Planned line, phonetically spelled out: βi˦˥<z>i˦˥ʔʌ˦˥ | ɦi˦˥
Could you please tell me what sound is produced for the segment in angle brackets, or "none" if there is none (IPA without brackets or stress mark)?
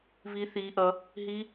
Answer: θ